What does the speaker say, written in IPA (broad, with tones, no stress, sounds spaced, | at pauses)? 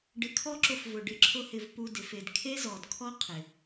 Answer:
ɖ ɪ˧ kʰ ɔ˦ ǁ ʊ˧ f v ʊ˨ ɖ ɪ˧ ǁʰ ʊ˦ h ɪ˧ v p u˦ d ɪ˧ f e˧ d kʰ e˦ z ɔ˨ d kʰ ɔ˦ qʰ ɪ˨